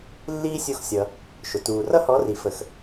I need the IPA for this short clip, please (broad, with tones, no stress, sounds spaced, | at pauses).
lː iː˥ sʲ u˦˨ x sʲ ʌ˩ | ʃ ʊ˩ t uː˩ r ʌ˥ h ɔ˨˥ r i˩ f ə˩ x